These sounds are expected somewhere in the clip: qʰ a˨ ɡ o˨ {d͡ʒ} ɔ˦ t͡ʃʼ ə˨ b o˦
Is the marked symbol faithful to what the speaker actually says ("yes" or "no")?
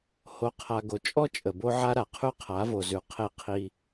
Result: no